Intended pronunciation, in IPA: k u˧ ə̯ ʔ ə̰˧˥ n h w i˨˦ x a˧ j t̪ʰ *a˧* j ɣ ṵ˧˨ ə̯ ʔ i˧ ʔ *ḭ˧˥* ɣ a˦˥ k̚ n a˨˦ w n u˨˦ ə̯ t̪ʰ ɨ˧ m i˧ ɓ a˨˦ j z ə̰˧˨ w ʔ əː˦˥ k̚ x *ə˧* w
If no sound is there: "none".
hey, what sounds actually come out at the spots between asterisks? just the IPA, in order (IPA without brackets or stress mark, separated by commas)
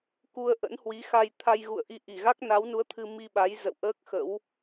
a˧, i˧˩, ə̰˧˥